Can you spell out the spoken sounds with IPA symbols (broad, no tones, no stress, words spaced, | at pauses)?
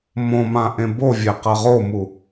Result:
mõmã ʔẽbovʲe qɐʁomu